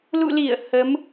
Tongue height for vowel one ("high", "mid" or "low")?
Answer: high